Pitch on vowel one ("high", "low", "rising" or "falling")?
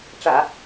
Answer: low